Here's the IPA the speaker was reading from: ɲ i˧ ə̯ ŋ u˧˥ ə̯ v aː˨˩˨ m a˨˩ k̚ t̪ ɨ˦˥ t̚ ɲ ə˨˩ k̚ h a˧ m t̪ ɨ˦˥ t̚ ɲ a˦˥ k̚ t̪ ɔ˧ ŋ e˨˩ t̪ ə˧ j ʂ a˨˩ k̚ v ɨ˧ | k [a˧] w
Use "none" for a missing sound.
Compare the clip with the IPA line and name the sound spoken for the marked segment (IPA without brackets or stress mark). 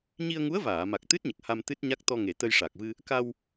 a˧